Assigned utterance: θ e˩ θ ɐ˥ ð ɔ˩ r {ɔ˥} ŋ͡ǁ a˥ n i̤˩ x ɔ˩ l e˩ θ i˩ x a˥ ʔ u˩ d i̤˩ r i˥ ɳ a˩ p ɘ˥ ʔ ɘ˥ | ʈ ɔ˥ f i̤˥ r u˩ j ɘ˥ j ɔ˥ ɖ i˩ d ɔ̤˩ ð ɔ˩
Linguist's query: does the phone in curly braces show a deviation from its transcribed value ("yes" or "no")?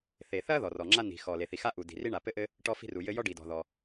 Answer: yes